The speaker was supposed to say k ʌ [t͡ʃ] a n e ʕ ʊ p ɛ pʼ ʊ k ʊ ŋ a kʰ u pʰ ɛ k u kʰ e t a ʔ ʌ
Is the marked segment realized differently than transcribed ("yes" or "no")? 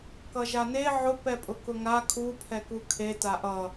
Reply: yes